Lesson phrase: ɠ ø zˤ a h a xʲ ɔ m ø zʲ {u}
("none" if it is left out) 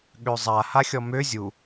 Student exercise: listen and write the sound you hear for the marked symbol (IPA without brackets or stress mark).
u